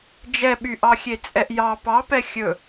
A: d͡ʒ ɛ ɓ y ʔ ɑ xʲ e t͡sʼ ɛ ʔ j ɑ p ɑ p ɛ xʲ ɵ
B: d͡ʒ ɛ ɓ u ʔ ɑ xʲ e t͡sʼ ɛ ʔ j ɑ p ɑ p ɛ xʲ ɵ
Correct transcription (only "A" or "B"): A